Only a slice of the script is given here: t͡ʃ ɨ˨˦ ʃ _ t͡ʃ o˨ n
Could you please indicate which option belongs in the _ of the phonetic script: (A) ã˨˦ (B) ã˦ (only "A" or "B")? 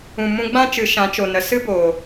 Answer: A